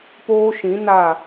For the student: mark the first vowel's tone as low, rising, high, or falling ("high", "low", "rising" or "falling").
high